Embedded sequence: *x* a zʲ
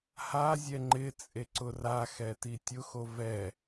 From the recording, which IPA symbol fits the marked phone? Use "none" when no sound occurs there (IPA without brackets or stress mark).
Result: h